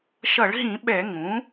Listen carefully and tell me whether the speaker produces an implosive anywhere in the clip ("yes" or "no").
yes